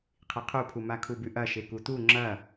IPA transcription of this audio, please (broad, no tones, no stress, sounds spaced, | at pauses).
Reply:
qʰ i qʰ u pʰ u m a kʰ u b ʉ ʔ ɐ ʃ e k u t u ŋ͡ǁ ɐ